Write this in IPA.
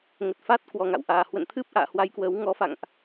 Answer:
ŋə˨˩t̚fa˦˥t̚ kwɔ˨˩ŋa̰˧˨wʔaː˨˩ hwə̰˧˨nt̪ʰɨ˦˥p̚ ʔa̰ː˧˨hwa˧jkwəː˨˦w ŋɔ˨˦fa̰˧˨ŋʔ

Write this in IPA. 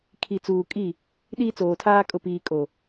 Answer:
kʰi˨t͡suː˨ kʼi˦˨ | ɗiː˦t͡soː˨tʰaː˦ kʼʊ˨piː˨ kʼo˨

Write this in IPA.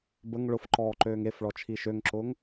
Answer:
bəŋ ɭʊf ǃɔːǃøːŋefɭɔ t͡ʃʰiʃøŋǁʊːŋ

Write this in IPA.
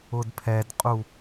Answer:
ʊdpʰɛdqʼu

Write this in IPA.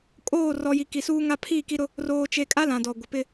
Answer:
kʼoː˦˨rɔ˨ji˨ ki˨suː˦ŋa˦ pʰi˦˨ ki˦ɾʊ˦ | roː˨t͡ʃe˨kʼa˦ lã˨dɔ˨ɡʷɪ˨ pɪ˦

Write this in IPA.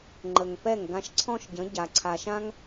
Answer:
ŋ͡ǃə˩ŋ pɛ˥˩ŋ ɡã˧ʃǀʰɔ̃˥ʃ ɟə̃˩˥ ɟa˩ ǀʰa˩ʃã˥ŋ

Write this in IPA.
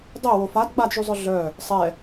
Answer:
dˤewo fad ɡ͡badʒyzˤœ ɮœ | sˤɛ

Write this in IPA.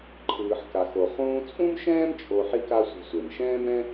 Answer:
ǃʰɯː˩ħka˩xo˩ χũː˧t͡sʼũ˥mʃɛ̃ː˥m t͡ʃʼo˧ ħi˥ka˥sʷe̤˧sʷe˩m ʃɛ̃ː˥mɾɛ̃˥

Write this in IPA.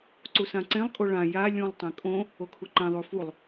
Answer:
ǀusãǀẽlˠ kʼoɭã ja lʲũlˠ tˤẽkʼõ | okʰuǃẽ ðˤufulˠ

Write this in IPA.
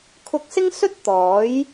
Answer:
kʰʊ˧k̚sɪ˥ŋsɵ˥t̚ t̪ɔː˨˥j

